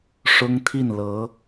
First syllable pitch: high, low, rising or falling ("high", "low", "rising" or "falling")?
high